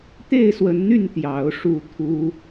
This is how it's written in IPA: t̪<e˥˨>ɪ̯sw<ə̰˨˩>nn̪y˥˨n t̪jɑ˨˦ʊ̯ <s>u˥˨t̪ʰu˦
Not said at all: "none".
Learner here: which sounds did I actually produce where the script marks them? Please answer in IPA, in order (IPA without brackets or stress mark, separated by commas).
e˥˨, ə˨˦, ʂ